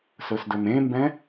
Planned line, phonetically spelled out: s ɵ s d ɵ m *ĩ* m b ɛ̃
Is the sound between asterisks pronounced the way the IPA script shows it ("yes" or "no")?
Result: no